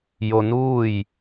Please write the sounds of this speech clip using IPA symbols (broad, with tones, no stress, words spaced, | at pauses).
jo˧nuː˥˨j